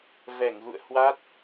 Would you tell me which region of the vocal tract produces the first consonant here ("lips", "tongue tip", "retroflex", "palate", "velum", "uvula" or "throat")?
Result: lips